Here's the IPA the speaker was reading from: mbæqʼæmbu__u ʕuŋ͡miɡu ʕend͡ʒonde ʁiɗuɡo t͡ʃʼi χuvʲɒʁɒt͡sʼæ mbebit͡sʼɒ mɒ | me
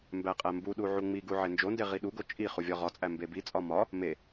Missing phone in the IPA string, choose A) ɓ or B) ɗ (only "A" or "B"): B